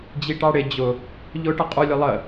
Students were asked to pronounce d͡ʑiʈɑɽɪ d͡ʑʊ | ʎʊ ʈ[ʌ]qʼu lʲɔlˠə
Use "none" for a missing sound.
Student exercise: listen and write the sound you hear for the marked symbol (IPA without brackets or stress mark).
ʌ